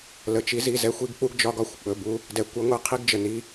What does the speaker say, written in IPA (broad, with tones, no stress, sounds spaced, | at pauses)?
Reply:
l ə˩ t͡ʃ i˨˦ z i˩˧˩ z ɛ˦ xʷ i˦ ɡ k͡p u˦ ɡ d͡ʒ ɒ˦ ɡ ɒ˧˩ xʷ ɓ ɵ˩˧˩ b u˨˦ | d ɛ˩ kʷ ə˨˦ ŋʷ ɛ˧˩ qʰ i˦ ɡ d͡ʒ ə˩ n i˩˧˩